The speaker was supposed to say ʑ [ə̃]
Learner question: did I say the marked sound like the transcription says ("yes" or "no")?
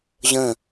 yes